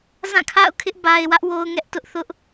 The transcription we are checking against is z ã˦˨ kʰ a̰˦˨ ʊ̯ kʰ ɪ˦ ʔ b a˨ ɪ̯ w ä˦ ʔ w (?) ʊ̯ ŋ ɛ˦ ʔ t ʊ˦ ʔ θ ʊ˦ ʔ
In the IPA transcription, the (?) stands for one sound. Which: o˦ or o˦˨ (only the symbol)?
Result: o˦